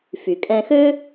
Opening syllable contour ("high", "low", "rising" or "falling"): low